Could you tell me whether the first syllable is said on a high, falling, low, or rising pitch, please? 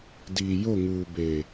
low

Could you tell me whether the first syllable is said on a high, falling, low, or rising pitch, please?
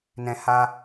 high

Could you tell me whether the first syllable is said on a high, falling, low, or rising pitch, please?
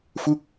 falling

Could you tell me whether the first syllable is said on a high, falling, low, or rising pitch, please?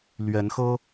rising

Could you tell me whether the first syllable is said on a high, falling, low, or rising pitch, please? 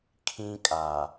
high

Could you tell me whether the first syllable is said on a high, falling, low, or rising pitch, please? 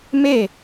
falling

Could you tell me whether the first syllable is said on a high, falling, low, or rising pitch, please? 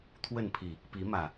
falling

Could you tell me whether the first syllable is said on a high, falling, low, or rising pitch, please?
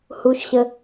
low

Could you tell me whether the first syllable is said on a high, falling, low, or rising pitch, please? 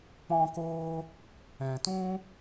high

